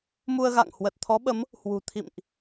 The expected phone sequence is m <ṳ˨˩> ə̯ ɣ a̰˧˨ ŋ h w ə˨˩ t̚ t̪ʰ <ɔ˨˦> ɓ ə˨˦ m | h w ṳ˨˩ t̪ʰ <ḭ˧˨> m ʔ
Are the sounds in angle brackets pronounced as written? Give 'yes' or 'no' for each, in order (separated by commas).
no, yes, yes